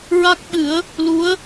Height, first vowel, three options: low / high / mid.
low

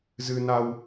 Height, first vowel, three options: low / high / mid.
high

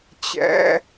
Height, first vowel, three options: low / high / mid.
mid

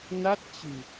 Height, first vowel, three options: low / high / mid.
low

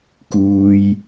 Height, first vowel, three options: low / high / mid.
high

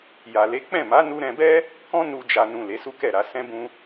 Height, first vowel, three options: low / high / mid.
low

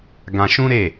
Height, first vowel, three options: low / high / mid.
low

